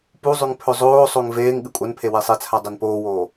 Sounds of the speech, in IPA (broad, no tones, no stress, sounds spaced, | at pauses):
p u zˤ ʉ ŋ pʰ ɵ zˤ oː sˤ o ŋ v eː ŋ ɠ ɨ kʷʼ ɐ n pʰ e w e sˤ e t͡sʰ a dˤ e n p oː w oː